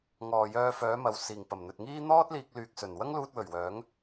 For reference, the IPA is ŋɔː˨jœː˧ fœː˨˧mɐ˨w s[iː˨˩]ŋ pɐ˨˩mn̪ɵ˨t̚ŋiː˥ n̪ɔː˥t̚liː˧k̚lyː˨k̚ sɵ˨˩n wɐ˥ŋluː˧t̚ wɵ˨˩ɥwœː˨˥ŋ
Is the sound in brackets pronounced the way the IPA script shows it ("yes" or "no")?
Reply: yes